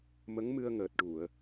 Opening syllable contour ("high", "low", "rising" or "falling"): rising